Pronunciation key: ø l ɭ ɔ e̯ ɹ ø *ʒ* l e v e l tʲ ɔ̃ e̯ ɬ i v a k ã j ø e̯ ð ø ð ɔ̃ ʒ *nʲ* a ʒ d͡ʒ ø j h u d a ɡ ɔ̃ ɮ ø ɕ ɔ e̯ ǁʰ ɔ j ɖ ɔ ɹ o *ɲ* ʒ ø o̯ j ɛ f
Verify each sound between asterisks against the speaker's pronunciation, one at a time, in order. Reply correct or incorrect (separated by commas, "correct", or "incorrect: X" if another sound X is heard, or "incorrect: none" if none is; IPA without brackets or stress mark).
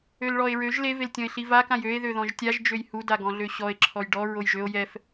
correct, incorrect: tʲ, incorrect: j